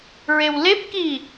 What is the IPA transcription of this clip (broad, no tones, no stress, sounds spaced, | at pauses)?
ɹ e w l e p k i